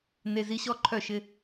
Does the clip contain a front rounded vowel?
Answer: yes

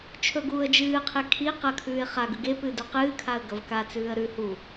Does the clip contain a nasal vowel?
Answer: no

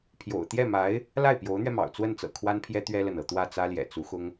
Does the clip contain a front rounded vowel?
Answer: no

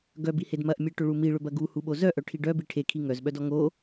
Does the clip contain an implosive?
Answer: yes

